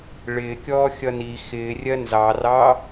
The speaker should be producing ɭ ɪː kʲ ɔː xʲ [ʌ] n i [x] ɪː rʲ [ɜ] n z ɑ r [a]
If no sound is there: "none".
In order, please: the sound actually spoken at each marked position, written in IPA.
ʌ, x, ɜ, ɑ

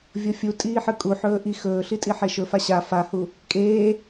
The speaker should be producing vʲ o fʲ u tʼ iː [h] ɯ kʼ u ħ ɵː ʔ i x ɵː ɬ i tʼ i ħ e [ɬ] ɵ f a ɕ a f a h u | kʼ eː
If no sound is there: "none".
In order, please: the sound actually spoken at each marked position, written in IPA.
ħ, ʃ

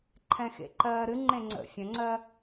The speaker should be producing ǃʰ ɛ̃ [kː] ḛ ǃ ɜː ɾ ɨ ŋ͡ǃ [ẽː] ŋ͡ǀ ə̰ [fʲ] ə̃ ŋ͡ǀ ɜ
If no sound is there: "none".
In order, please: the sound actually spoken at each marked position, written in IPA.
x, ẽ, fʲ

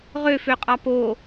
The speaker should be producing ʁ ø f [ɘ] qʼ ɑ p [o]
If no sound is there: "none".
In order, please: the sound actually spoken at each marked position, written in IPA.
ø, o

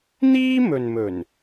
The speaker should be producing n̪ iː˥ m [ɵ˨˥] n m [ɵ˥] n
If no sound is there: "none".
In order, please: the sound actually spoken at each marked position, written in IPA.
ɵ˨, ɵ˨˩

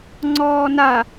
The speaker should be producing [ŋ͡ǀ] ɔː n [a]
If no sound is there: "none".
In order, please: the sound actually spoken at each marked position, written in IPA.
ŋ͡ǀ, a

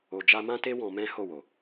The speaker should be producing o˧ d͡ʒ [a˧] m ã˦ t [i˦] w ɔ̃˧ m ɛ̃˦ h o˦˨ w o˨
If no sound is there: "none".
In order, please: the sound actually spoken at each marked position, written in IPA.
a˦, e˦

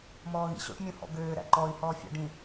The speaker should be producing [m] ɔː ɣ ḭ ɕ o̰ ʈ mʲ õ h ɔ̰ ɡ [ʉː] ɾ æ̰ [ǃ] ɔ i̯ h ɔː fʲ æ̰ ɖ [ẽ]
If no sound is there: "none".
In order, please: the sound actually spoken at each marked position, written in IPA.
m, øː, ǃ, ĩ

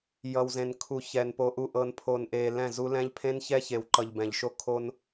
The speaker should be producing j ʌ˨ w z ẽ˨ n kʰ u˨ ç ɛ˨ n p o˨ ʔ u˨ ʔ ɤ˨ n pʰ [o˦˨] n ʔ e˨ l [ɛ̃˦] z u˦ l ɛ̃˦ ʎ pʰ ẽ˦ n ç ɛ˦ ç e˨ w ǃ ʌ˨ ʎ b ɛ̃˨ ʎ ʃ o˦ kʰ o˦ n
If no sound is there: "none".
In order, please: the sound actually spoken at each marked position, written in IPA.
o˨, ɛ̃˦˨

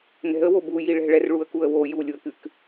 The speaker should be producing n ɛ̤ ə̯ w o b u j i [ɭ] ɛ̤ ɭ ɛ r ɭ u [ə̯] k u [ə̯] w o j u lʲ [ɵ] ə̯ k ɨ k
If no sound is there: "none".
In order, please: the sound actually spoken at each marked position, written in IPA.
ɭ, ə̯, ə̯, o

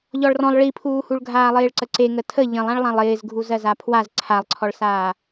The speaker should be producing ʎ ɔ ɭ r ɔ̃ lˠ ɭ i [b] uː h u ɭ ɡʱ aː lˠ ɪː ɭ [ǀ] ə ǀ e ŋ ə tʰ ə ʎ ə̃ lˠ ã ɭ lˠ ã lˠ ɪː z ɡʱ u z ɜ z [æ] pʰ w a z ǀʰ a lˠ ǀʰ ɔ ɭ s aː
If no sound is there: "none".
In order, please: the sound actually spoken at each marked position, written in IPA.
pʰ, ǀ, a

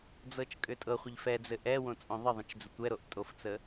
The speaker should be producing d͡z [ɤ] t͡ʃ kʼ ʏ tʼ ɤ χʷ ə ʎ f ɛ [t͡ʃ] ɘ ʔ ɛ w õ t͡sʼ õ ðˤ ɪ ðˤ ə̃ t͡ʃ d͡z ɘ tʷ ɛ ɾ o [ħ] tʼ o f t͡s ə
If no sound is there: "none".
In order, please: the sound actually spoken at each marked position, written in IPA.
ɤ, d͡z, ʔ

